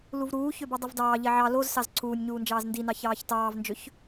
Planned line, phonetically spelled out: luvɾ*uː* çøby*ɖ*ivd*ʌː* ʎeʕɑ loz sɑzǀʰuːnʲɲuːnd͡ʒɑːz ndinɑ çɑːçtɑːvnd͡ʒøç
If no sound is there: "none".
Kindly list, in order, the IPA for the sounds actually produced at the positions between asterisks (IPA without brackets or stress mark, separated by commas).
uː, dˤ, ɑː